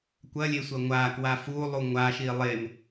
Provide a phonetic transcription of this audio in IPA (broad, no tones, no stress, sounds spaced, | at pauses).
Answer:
kʷ ɐ lʲ e sʷ ɐ ŋʷ a k w a f u lˠ u ŋʷ a ʃ i lˠ e m